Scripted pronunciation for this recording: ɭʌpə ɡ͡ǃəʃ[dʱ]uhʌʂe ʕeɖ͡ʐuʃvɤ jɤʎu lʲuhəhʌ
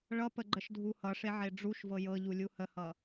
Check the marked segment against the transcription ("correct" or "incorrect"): correct